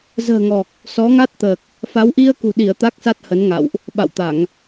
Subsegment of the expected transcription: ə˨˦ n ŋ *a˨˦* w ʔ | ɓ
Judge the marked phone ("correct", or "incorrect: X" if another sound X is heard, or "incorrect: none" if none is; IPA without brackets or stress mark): incorrect: a̰˧˨